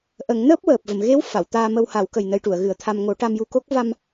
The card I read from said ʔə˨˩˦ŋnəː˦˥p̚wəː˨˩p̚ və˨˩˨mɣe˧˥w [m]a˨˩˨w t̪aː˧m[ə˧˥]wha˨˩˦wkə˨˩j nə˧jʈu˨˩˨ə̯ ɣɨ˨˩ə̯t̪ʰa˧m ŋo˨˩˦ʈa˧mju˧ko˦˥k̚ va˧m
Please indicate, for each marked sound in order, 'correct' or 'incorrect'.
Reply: incorrect: f, incorrect: ə˧

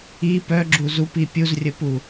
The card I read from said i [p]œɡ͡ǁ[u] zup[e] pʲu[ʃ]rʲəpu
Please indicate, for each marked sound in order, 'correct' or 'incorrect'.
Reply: correct, correct, incorrect: i, incorrect: z

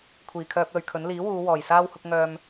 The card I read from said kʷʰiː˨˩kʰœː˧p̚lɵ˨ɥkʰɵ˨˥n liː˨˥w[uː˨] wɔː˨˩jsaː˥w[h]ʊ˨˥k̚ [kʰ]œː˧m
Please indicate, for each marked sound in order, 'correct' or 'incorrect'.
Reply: incorrect: uː˨˧, correct, incorrect: ŋ

